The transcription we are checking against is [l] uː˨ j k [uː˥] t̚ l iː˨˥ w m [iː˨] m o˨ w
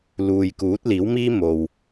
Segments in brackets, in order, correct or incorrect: correct, incorrect, incorrect

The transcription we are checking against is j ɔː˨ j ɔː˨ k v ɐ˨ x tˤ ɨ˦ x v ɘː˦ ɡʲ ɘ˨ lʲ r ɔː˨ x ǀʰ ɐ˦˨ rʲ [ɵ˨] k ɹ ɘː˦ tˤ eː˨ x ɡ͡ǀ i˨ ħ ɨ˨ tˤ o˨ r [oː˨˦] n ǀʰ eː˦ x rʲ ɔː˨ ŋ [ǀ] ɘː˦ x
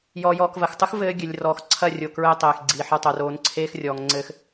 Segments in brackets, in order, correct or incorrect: incorrect, correct, incorrect

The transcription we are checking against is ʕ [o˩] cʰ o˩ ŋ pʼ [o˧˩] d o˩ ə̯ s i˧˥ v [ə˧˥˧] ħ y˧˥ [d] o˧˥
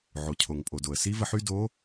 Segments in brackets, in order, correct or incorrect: correct, incorrect, incorrect, correct

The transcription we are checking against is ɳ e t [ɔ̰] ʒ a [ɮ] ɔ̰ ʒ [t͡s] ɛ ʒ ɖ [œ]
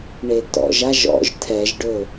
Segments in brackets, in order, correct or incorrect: correct, incorrect, incorrect, incorrect

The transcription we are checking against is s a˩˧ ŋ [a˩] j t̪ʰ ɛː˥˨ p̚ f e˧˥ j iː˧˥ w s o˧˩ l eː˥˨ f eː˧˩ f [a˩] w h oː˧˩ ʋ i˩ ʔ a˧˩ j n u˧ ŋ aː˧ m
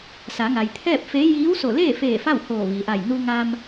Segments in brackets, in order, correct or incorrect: correct, incorrect

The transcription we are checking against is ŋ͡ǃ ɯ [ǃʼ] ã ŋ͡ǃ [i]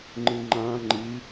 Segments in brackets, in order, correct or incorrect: incorrect, correct

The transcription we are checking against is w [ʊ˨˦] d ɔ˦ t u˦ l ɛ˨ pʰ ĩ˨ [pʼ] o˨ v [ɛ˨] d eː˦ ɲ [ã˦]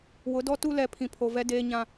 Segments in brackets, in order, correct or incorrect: correct, incorrect, incorrect, correct

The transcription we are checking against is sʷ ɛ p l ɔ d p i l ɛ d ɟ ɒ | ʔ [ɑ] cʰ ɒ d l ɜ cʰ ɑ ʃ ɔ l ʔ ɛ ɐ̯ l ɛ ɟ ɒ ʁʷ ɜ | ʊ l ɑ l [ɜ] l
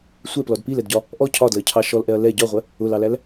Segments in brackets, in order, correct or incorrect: incorrect, incorrect

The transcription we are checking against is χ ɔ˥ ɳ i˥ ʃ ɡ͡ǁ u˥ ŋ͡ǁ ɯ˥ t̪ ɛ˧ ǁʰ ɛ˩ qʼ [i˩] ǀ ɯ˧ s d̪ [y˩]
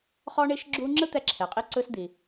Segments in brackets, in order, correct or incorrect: incorrect, incorrect

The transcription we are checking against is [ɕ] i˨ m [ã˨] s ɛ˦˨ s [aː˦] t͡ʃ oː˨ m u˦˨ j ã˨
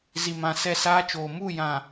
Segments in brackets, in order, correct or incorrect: incorrect, correct, correct

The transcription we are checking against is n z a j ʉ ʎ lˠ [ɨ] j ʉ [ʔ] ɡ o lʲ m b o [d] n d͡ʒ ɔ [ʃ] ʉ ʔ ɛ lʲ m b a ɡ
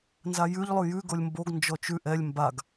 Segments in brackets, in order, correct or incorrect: incorrect, incorrect, incorrect, incorrect

